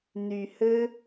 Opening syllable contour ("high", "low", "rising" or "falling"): low